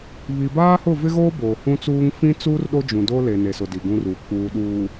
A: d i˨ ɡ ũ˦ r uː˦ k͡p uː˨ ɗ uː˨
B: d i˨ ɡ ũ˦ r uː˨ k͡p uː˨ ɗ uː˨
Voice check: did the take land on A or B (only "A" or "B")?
B